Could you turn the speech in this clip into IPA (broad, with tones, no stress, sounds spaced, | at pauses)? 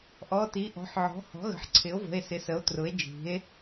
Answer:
ʔ ɔ˩˧˩ t i˩˥ ʔ ɔ̤˩˥ ħ ʕ ɔ̤˩˥ h ɔ̤˩˥ ɣ ə̤˩˥ ħ ǀʰ ɪ˩˥ o̯ v ə̤˩˧˩ e̯ s ɪ˩˥ s ə˩˥ o̯ t r ʊ˩˥ e̯ d͡ʒ i̤˩˥ e̯